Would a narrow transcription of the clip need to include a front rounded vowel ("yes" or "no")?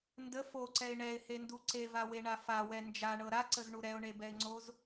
no